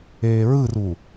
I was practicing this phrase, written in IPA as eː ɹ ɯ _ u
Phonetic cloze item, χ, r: r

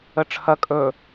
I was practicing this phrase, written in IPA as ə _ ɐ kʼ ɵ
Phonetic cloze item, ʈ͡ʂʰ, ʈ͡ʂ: ʈ͡ʂʰ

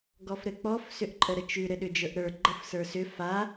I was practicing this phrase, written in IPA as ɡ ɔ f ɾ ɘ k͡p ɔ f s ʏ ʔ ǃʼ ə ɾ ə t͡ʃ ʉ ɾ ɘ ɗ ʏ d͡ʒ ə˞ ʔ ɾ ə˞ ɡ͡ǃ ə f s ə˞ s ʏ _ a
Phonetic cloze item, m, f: f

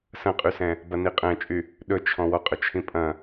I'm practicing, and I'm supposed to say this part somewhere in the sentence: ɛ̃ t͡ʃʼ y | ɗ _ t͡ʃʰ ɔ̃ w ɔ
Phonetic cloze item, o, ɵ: ɵ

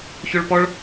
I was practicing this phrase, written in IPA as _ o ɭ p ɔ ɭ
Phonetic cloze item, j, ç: ç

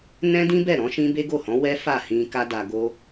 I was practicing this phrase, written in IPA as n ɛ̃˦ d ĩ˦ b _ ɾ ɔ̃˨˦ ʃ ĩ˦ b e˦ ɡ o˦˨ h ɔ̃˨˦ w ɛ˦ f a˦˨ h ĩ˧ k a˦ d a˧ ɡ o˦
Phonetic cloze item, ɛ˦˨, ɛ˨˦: ɛ˦˨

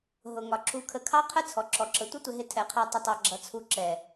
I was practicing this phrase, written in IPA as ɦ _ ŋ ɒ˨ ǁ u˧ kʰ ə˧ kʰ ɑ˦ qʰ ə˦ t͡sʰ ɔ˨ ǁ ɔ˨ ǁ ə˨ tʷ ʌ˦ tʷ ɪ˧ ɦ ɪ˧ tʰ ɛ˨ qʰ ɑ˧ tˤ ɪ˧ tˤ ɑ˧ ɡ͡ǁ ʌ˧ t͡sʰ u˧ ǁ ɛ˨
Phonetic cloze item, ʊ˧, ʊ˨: ʊ˨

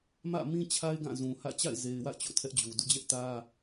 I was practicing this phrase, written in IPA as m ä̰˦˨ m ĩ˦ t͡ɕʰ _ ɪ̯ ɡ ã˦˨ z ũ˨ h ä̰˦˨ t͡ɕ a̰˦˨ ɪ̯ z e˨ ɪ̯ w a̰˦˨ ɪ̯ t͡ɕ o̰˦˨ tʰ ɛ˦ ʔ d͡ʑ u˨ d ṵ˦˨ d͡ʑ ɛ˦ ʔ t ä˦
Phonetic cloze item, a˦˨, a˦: a˦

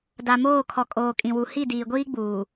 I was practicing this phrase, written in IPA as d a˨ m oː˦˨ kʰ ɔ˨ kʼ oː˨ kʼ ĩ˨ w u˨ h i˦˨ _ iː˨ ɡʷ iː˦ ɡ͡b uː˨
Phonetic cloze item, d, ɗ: d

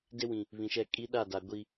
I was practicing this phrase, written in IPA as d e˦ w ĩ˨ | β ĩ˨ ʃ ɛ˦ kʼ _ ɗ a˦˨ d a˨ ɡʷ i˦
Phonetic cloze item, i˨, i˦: i˦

